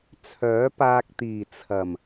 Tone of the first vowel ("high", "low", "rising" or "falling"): rising